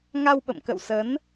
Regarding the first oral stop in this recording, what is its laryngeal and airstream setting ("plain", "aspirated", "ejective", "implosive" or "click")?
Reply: implosive